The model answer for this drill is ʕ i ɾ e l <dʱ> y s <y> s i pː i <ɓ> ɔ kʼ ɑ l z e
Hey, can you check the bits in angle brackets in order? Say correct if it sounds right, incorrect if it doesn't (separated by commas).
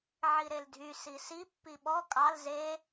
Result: correct, incorrect, correct